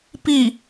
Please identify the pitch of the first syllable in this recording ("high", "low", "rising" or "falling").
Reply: falling